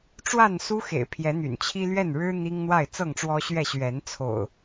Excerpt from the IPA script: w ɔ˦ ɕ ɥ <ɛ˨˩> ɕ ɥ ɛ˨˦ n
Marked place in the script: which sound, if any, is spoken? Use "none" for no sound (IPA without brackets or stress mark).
ɛ˥˨